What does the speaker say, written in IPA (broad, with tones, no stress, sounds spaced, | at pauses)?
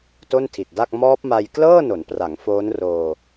t o˥˩ n tʰ i˨˩ t̚ d a˥˩ k̚ m ɔː˦˥ p̚ m a˧ j k l ɤː˥˩ n o˩˦ n p r a˩˦ ŋ f oː˦˥ n r oː˧